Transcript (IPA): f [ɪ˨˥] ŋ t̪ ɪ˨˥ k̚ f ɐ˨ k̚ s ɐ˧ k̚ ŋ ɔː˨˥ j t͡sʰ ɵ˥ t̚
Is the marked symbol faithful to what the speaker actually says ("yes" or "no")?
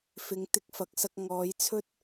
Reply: yes